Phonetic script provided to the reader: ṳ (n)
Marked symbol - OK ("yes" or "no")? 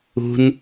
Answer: yes